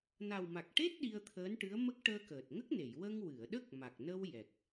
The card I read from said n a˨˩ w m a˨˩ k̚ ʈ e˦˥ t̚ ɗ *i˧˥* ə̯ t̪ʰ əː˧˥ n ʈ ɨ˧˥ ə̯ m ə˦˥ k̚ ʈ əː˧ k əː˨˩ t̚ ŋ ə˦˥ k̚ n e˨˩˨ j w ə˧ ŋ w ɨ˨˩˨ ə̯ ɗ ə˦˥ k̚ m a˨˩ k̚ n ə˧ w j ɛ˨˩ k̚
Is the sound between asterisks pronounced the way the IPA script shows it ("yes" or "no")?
no